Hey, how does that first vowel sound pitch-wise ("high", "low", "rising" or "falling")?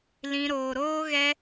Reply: high